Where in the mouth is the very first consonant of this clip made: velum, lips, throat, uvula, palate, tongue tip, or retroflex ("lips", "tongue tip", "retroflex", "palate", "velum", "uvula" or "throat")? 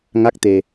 velum